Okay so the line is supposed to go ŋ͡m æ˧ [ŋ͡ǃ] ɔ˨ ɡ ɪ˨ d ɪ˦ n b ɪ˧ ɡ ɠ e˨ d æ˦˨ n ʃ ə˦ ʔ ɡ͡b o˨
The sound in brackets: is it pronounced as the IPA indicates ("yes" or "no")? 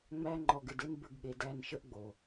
yes